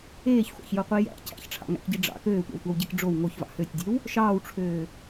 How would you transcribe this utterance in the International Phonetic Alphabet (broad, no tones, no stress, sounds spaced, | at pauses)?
eː ç χʷ ɑ̰ ç j o qʷ i j æ̰ cʰ æ̰ ç ʈ͡ʂʰ ɑ̰ ŋ æ̰ k ɟ i ɖ͡ʐ ɑ̰ k øː tʷ ɑ̰ w tʷ ɑ w ɟ e k ɖ͡ʐ o w ŋ o ç v ɑ̰ h ø tʲ dʲ e w | ʃ ɑː w ʈ͡ʂʰ øː